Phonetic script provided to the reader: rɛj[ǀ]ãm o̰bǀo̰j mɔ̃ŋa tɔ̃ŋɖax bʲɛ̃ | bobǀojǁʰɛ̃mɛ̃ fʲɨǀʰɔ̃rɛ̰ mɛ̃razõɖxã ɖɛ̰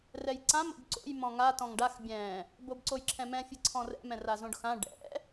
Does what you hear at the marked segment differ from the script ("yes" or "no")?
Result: no